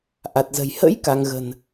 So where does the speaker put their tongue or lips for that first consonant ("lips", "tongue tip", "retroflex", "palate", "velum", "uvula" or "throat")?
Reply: throat